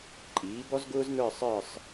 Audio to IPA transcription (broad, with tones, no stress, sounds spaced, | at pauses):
ǃʼ iː˩˥ b ɔ˥ z ɡ ʊː˥ z n ə˞˥˧ sˤ ə˞˥˧ sˤ